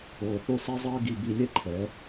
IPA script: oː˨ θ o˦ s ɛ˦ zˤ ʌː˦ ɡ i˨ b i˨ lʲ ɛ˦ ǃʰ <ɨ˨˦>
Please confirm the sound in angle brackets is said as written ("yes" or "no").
no